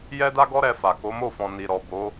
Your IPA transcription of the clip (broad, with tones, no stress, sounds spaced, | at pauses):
j ɛ˦ d a˦ ɡ ɔ˦ ɾ ɛ˧ f a˨ k o˨˦ m o˦˨ f ɔ̃˨ n i˨ ɾ ɔ˨ b o˨˦